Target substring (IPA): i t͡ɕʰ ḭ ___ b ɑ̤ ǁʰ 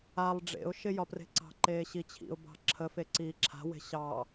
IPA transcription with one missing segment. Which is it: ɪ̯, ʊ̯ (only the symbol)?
ʊ̯